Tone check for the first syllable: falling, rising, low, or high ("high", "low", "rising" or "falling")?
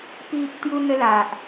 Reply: low